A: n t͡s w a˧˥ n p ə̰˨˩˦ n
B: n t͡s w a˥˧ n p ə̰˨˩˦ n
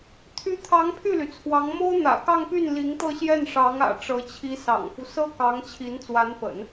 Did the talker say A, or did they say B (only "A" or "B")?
A